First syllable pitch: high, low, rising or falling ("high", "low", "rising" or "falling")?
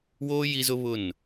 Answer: high